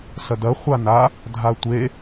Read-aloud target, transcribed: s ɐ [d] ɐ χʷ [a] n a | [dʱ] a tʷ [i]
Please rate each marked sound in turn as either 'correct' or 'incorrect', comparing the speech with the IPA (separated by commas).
correct, correct, correct, incorrect